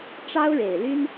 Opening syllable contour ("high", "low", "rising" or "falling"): high